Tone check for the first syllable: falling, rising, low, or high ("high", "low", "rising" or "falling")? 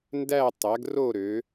falling